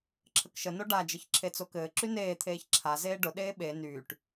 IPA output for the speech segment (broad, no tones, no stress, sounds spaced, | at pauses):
ǁʰ ə k ʃ ə n o ɖ a d͡ʒ ə ç ǁʰ e t͡s o k ɘː ǁ y n eː t̪ʰ eː ç ǁʰ a z eː ɖ ʊ ɗ eː ɓ e n yː ʈ